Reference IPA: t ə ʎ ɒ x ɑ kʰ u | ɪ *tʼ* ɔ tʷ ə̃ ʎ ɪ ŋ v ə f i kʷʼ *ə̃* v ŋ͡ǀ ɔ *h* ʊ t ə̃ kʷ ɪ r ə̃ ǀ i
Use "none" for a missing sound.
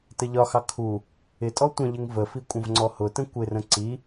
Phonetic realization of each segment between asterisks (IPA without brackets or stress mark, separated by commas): tʼ, ə̃, h